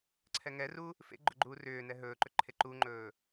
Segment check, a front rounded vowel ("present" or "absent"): present